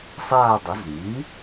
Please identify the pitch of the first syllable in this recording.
falling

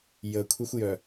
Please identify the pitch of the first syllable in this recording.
low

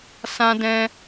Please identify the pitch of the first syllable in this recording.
high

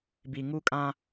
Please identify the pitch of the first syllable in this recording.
low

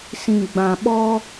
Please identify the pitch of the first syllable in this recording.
low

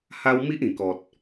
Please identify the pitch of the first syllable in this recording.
high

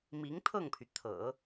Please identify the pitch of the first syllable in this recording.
rising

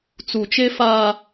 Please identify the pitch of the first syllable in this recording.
low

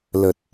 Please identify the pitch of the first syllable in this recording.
low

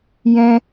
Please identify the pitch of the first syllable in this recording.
high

